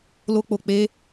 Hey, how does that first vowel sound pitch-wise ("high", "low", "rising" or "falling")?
high